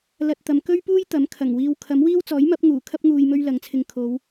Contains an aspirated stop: yes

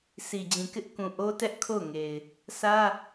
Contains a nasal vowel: yes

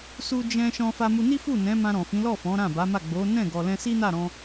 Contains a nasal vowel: yes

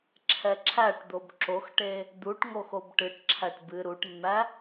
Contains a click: yes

